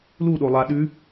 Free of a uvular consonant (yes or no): yes